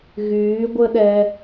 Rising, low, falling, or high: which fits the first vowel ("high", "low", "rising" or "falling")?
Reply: rising